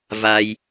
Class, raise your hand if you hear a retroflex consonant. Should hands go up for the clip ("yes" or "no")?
no